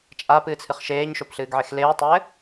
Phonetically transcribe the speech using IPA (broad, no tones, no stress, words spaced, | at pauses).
t͡ʃʼapɨːt͡sʰɨχ ʃeːɲʃopɬɨːɡʕex leːtˤɘː